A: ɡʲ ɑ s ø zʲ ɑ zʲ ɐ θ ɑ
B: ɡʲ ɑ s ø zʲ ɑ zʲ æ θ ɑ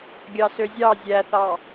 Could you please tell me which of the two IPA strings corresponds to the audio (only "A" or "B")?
B